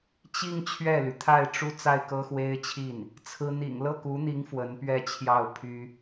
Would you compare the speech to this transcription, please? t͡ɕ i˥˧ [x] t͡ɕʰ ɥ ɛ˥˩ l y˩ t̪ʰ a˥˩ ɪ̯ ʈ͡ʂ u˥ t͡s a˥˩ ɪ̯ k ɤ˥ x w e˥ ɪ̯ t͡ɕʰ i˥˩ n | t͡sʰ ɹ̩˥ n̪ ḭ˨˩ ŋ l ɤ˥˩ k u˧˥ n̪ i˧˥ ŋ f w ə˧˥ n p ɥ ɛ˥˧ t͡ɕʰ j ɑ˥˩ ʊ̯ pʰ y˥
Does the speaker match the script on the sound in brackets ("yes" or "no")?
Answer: no